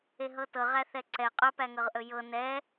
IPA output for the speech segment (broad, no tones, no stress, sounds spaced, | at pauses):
e ɦ ɤ t ɤ ʁ æ θ ɛ ǀ ɛ qʼ ɵ p æ ŋ ɤ ʁ ʔ ɵ j ɤ n ɛ